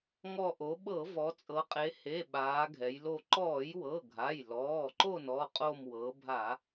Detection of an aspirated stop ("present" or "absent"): absent